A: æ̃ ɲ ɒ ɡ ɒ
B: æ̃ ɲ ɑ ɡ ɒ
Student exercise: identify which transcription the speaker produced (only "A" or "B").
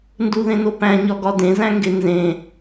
A